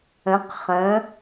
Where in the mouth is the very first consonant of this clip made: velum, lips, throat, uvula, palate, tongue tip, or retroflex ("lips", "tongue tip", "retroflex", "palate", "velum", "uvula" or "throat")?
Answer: uvula